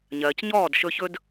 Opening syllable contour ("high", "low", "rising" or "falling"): low